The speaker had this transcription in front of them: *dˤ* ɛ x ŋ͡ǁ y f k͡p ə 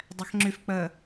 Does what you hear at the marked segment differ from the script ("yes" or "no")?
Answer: no